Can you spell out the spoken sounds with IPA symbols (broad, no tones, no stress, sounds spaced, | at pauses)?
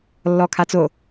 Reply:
lː ɔ kʰ a t͡s o